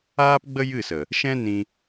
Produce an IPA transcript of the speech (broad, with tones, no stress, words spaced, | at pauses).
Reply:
aː˦pɡ͡bə˦jɨ˦˨sə˨ | ʃɛ̃˦nĩ˧